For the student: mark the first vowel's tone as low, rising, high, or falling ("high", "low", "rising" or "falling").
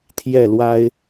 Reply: falling